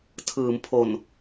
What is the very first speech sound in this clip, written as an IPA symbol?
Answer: tʰ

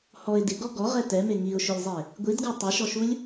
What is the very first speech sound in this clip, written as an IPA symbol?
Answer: h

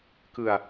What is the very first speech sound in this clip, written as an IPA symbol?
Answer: k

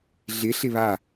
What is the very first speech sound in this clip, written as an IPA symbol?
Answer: ɮ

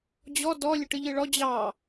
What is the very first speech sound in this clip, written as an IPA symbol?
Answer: d͡ʑ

